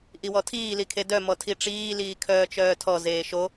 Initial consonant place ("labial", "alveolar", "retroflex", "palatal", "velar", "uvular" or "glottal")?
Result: glottal